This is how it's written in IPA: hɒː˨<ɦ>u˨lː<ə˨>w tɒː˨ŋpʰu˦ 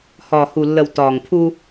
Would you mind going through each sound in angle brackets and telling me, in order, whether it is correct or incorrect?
incorrect, correct

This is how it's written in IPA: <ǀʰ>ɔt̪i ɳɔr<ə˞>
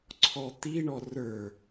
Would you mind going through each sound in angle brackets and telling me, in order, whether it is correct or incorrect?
correct, correct

